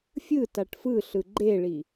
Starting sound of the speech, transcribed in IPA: fʲ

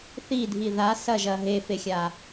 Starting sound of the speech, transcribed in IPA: θ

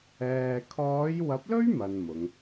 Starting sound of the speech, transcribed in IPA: ɛː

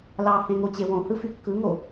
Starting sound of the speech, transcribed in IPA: l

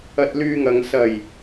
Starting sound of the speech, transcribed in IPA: ɐ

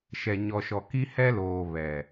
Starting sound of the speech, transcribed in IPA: ʃ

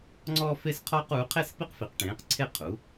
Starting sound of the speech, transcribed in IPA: ŋ͡ǀ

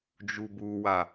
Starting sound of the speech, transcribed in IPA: d͡ʒ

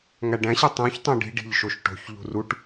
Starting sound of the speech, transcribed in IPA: ŋ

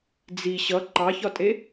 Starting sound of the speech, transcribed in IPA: d͡z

